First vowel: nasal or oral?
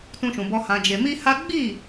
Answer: nasal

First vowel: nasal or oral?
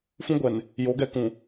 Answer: nasal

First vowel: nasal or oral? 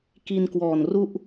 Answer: oral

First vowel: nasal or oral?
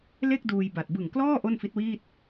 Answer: oral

